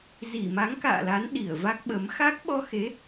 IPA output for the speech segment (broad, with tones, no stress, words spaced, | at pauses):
zi˧˩ma˨˦ŋka̰ː˧˨la˨˦n ɗi˧˩ə̯va˦˥k̚ɓə˨˦m xa˦˥k̚ɓɔ˧xe˨˦